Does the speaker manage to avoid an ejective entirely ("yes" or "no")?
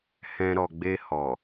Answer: yes